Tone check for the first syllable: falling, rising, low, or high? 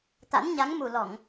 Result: rising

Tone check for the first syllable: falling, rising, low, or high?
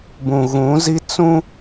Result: low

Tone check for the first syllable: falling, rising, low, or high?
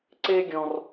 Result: high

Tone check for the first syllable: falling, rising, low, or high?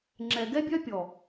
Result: low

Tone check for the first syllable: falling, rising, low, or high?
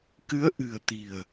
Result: rising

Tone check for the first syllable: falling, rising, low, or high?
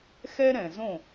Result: high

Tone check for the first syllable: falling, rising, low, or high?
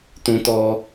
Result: high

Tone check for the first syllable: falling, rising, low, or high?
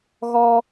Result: high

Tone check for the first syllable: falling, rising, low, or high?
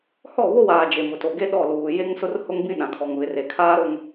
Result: falling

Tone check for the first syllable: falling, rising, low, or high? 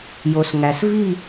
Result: low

